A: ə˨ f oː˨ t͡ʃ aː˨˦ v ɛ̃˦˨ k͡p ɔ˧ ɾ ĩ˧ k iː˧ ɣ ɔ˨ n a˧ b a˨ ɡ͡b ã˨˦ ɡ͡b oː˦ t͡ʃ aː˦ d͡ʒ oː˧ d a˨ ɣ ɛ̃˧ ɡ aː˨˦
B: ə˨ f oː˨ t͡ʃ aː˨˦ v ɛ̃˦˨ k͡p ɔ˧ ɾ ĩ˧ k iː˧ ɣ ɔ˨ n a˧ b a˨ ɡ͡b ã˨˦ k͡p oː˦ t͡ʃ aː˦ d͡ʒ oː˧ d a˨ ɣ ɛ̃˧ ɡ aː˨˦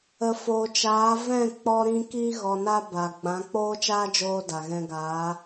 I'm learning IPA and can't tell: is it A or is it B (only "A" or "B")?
B